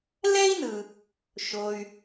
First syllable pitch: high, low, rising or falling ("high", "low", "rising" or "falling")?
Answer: high